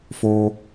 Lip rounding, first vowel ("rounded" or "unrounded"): rounded